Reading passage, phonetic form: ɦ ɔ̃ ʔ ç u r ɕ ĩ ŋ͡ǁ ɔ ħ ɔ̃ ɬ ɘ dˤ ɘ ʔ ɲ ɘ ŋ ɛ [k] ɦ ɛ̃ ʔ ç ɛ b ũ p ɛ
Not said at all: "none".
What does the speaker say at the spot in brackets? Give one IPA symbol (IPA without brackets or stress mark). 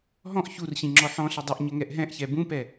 ʔ